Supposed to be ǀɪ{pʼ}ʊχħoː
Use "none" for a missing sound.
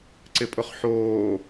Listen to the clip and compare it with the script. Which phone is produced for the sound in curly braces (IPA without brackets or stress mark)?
pʼ